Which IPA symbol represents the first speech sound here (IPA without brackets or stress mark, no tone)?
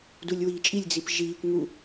d